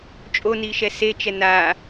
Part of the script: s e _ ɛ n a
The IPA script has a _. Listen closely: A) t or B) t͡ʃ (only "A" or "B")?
B